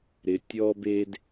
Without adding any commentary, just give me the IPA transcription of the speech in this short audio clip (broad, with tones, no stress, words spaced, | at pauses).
ɾɪ˨ tʲɔ˦be˦d